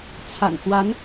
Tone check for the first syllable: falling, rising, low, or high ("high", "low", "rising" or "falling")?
low